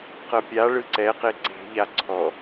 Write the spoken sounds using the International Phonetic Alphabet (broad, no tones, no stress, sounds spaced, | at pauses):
q ɤ pʲ a ɭ ɯ ǀ ɛ q e ǀ e̤ ʎ a ǀʰ ɔ